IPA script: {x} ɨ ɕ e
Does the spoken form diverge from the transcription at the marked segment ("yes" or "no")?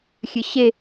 yes